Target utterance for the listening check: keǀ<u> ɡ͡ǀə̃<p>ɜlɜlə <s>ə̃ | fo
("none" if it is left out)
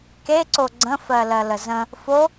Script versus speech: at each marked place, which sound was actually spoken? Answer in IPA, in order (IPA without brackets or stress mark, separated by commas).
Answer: o, f, z